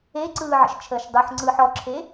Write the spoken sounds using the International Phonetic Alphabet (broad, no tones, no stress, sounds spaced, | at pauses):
e ǀ ɯː ʕ ə̰ ʃ t͡ʃʰ əː ʃ dˤ ɯ ħ ŋ͡ǀ ɯː ħ ɔ ǁʰ e